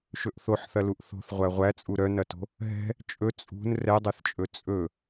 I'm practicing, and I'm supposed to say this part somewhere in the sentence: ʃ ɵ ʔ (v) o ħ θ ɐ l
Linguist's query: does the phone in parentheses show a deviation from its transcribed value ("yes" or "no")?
yes